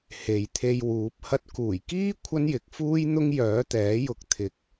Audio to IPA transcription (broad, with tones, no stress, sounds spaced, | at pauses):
h e˨ j t̪ʰ e˧ j w uː˨˥ p̚ h ɐ˥ t̚ k uː˨˩ j k iː˥ kʷʰ ɐ˥ n j ɪ˨˥ k̚ f uː˥ j n̪ ʊ˥ ŋ j œː˨˥ t̪ ɛː˨˥ j ʊ˨˥ k̚ t̪ʰ ɪ˨˥ k̚